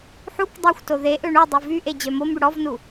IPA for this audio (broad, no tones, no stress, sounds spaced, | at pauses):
ħ u k dˤ e xʷ t o ð e ʔ ø ɳ u dˤ y v y ʔ e d͡ʑ œ m o m y ɽ ɔ v n u